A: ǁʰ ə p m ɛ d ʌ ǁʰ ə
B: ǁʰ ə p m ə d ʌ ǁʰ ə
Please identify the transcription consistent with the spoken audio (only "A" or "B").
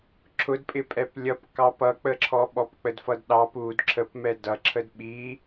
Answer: A